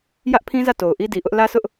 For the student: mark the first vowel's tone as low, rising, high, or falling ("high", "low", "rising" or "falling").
high